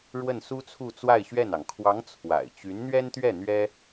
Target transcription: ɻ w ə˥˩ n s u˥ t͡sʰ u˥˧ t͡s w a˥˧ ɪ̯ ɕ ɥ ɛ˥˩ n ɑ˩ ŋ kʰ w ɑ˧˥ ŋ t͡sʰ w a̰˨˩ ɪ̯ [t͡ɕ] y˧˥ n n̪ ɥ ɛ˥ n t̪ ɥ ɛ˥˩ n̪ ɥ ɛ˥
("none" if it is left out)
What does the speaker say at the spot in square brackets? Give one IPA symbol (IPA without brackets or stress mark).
t͡ɕ